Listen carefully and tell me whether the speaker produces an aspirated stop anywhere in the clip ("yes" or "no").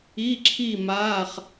yes